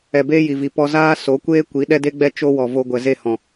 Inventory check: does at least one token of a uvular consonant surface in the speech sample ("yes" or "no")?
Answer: no